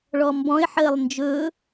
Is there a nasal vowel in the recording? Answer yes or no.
yes